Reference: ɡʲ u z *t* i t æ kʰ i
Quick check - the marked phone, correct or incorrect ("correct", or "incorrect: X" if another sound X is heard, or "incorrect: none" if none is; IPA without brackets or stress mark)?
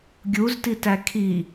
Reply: correct